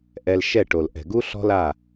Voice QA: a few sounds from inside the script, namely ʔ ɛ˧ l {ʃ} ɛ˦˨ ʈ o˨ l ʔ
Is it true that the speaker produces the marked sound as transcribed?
yes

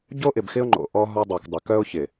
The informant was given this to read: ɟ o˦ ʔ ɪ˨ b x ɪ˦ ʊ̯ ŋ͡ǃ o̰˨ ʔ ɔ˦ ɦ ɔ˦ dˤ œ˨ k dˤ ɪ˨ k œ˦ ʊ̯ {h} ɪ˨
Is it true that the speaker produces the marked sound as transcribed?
no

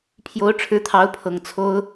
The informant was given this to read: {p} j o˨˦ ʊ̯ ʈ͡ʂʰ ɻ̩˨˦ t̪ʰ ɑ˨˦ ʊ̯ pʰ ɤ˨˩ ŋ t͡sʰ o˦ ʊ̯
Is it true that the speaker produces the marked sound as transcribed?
no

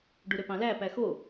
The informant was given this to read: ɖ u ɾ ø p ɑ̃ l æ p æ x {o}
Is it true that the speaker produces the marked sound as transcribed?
yes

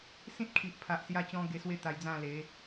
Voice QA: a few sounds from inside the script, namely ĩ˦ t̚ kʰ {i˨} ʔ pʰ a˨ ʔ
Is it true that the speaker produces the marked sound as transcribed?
yes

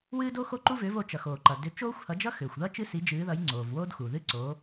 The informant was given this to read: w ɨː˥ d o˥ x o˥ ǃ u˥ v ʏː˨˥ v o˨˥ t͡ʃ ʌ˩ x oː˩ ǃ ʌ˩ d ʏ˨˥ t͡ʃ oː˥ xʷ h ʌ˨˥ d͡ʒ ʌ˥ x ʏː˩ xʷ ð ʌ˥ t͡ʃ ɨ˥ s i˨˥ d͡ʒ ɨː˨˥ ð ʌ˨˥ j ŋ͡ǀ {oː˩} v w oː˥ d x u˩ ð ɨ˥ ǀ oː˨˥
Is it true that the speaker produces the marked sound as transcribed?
yes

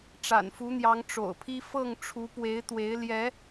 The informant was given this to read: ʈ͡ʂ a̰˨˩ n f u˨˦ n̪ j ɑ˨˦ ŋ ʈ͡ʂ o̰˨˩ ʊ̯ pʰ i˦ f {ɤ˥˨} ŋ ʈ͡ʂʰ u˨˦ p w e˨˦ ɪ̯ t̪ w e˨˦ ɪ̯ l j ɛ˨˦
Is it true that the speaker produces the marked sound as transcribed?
yes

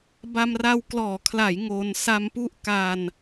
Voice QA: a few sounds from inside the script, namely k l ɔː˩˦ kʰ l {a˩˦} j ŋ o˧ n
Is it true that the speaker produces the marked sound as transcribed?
yes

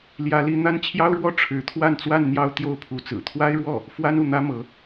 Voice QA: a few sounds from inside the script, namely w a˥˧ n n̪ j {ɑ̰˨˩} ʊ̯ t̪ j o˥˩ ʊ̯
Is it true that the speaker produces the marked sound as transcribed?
no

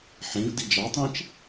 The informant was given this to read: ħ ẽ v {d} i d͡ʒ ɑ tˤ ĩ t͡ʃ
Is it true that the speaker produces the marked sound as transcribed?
yes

